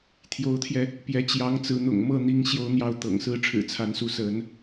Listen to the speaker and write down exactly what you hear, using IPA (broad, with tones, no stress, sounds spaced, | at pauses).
t̪ʰ j o˧˥ ʊ̯ t̪ʰ j ɛ˧ | p j ɛ˧˥ t͡ɕ j ɑ˧˥ ŋ t͡s ɹ̩˧˥ n̪ ʊ̰˨˩ ŋ m ɤ˥˩ n̪ i˧˥ ŋ ɕ j o˥ ʊ̯ n̪ j ɑ˥˩ ʊ̯ t̪ ɤ̰˨˩ ŋ s ɹ̩˥ ʈ͡ʂʰ ɻ̩˨˩ t͡sʰ a˧˥ n s u˥˩ s ə˧˥ n